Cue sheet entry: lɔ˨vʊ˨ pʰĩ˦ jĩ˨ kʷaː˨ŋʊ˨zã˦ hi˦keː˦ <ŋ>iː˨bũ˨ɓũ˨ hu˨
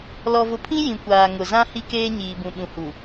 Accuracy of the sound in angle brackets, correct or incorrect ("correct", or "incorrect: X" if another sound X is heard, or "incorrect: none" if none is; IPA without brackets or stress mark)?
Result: incorrect: ɲ